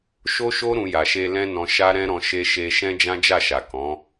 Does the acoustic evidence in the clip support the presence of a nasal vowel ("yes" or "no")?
yes